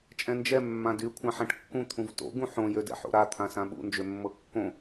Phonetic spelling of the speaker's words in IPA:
t͡ʃʼ ɛ̃ n d͡ʒ ɛ mː ã d y kʷʰ ã ħ ã ʈ kː ũ t̪ʰ ũ v t o̰ ɡ ũ ħ õ j ø d ɛ̰ ħ o̰ ɾ a t̪ʰ ã s ã ɓ ṵ n d͡ʒ ø mː ɤ kː õ

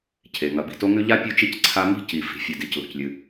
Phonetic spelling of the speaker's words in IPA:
cʰ e˩ ŋ ɐ˩ b i̤˩ t o˥ ŋ ʉ˥ ʎ a˥ pʲ ʉ˥ t͡ʃ i˥ c ǀʰ a˥ m i̤˥ c i˩ f i̤˩ fʲ ɨ˩ d i˩ c l o̤˩ c lʲ ɨ˩

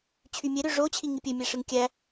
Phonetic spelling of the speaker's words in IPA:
t͡ɕʰ y mʲ e ɾ ø ʐ o t͡ɕʰ i ŋ i pʲ ø mʲ æ ʂ ɯ ŋ kʲ æ

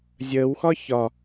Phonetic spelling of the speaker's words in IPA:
zʲ əː w x ɒ ç ɒ

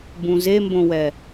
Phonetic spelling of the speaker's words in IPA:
b ũ z e m b õ w ɛ

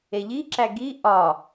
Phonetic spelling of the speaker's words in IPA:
e ʎ i ǁ æ ɡ i ʔ ɒ

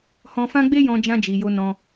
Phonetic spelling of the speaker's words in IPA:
h ɔ̃˧ f ã˦ ɡ͡b e˦ j ɔ̃˧ d͡ʒ ã˧ d͡ʒ i˨ j o˧ n ɔ̃˧

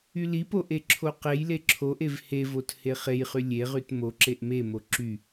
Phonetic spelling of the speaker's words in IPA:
y l i p o ʔ e ǁʰ o q e j l e ǁʰ o ʔ e v h e v o t h e χ e j χ y lʲ e ʁ y t m o ǁ e ʔ m e m o ǁ y

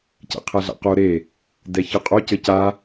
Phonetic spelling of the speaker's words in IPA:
c ɛ̰ qʰ ɛ ɮ a̰ q o ɾ e | d ɛ ç ʌ qʼ o c ɘ c a

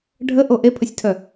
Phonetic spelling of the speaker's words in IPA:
ɖʱ ə ʔ o ʔ e pʰ ə sʲ tʰ œ

